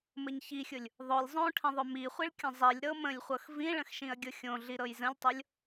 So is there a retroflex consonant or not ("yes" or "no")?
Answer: yes